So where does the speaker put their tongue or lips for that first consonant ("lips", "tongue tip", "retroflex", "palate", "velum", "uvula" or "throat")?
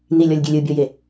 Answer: tongue tip